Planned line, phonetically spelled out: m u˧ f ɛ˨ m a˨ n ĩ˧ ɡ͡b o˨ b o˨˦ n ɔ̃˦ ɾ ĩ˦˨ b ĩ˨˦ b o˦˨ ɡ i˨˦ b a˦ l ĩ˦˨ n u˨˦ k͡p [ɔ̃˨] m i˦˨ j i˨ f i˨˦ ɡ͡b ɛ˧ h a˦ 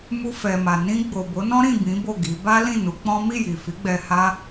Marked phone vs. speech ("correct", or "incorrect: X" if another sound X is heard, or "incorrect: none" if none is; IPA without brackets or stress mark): incorrect: ɔ̃˦